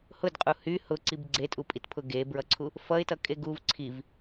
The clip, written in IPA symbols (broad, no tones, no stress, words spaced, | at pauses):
hʊdqʼu hy hʊǀib ɡ͡ǀetʼupʼitpʰʊ ɡebɹʌǀʰu | fʌɪ̯tʌkʼe ɡuv ǀʰiv